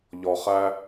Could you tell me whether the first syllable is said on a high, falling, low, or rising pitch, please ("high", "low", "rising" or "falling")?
low